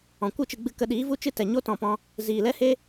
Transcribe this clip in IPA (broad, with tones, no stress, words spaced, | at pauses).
ɔ̃˨kʷɨ˦˨t͡ʃɨ˧ɡ͡bɨ˧ kə˧ɗiː˨˦vu˦ t͡ʃɨ˦tɛ˨ ɲo˦tɔ̃˨pɔ̃˧ | ziː˨lɛ˦he˦